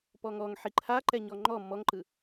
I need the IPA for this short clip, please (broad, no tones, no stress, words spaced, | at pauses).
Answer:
pɔŋɔŋ ħiǃʰaǃɛ ɲɔŋ͡ǃɔ mɔŋǃɯ